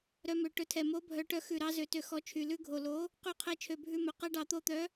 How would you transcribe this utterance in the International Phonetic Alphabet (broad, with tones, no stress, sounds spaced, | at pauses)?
ɾ œ˧ m ø˨˩ ʈ ɵ˨˥ tʰ ɛ˨˩ m o˨˥ bʱ œ˨˥ ʈ œ˧ x ʉ˨˩ ɾ ɑ˨˥ z ø˧ t ø˧ x ɔ˨˥ t͡ʃʰ y˨˩ l ʉ˧ ɡʱ o˨˩ l o˨˥ | q ʉ˨˥ qʰ ɛ˨˥ t͡ʃʰ ø˨˩ bʱ ʉ˧ m ɵ˨˩ q ɛ˧ ɖ ɑ˨˩ t̪ o˧ t̪ œ˨˥